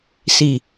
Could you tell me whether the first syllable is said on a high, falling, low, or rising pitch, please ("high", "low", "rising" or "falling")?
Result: low